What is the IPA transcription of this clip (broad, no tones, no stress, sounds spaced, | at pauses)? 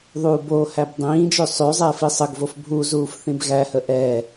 ðˤ uː b o h æ b dˤ ĩː d͡ʒ ø sˤ ø zˤ ɛː f i sˤ ə ɡ v o f bʱ u z uː f θ ĩ b ɣ æ h ə ʔ ɛ